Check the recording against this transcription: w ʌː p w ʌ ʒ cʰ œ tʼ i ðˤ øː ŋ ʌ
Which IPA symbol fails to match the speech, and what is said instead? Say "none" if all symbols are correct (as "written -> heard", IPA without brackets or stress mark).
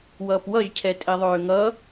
œ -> ɛ